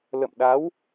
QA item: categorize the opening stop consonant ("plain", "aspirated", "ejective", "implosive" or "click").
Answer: implosive